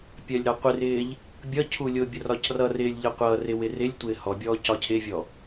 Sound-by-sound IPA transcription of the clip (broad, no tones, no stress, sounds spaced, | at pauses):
pʲ ɜ lʲ ɾ ɒ qʷ ɪ r ɪː ʎ | bʲ ʌ cʰ u lʲ ʊ bʲ ʊ r ɒ c r ʌ r ɪː lʲ ʎ ə qʷ ʌ r ɪ w ɪ r ɪ lʲ tʷ ɪː h ɔ bʲ ɔː c ɒ cʰ ɪ vʲ ɔ